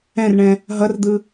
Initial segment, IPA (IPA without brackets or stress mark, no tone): ɛ̃